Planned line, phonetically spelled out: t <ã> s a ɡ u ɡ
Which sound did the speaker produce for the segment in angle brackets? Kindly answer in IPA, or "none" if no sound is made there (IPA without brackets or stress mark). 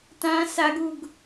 ã